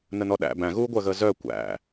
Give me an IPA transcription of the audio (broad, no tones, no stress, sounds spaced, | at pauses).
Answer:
n ə n ɔ ɗ æ̰ b æ̃ ɣ uː ɡʷ ɜ ɣ əː z œ kʷ æ̰